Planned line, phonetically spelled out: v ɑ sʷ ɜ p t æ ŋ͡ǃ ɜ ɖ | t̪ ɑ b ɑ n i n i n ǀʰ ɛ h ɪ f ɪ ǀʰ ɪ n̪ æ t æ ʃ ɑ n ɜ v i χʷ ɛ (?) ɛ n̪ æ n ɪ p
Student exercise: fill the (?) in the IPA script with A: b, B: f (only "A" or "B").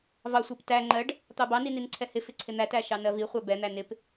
A